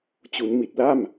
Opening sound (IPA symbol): t͡ɕ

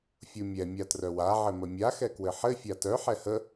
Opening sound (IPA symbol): fʲ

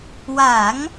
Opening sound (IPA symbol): w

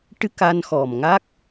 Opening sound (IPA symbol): ʈ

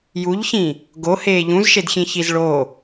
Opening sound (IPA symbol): j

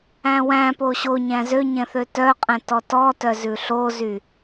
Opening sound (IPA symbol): æ̃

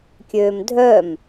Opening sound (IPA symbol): kʲ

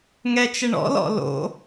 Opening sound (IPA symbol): ŋ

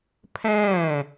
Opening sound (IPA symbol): pʰ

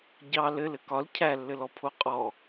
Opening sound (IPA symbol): ɟ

